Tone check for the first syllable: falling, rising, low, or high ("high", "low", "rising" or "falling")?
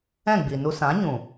falling